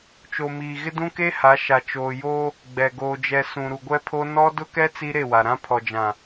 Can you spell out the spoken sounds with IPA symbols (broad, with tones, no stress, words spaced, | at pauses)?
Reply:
t͡ʃo˨miː˨ ɣɪ˦dũ˦ke˦ha˨˦ ʃa˨ t͡ʃoː˨joː˦ | ɡ͡bɛ˨ ɡoː˨d͡ʒɛ˨ sũ˨ɾu˨ɡʷɛ˦pʰo˦ nɔ˦ dʊ˦kɛ˦ t͡si˦ɾe˦˨wa˨ɾã˦ pʰɔ˨d͡ʒã˨